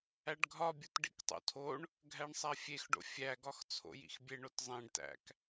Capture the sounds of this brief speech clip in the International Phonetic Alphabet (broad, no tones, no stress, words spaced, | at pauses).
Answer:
æɖɡʱɒbʲut ɖḭktˤo̰tʰoɳ | ɡʱæɳsˤæfʲexɖo̰ fʲæɡɒx t͡sʰo̰jḭxbʲeɳot zˤẽɖtæ̰k